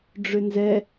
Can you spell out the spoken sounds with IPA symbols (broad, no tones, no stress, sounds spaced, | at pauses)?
ɖ͡ʐ ʏ n z ɛ